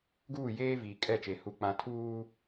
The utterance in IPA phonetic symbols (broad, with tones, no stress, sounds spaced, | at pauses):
ɡ uː˦˨ j eː˦ v iː˨ kʼ ɛ˦˨ t͡ʃ e˨ h u˨ k͡p ã˨ tʰ uː˦